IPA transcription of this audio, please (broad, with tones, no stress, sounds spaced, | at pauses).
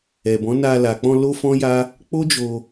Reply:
ɛ˨ b ɔ̃˨˦ n a˧ l a˨ k͡p ɔ̃˧ l o˦ f ɔ̃˦ j a˦ | k͡p o˦ d͡ʒ o˧